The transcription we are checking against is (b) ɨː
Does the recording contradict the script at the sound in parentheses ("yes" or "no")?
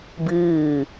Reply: no